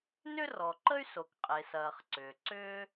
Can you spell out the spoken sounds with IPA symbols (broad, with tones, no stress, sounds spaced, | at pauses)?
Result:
n ʏ˥ r ɔ˩ ǃ ə˥ y̯ s o˩ k qʼ e˩ s ɐː˩ χ ǀ ʏː˩ ǀ ʏː˥